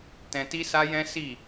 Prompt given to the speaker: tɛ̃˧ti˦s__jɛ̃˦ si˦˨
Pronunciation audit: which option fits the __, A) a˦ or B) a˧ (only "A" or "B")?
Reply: A